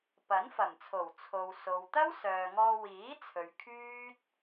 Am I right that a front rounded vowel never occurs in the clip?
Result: no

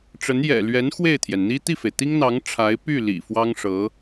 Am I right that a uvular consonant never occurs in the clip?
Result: yes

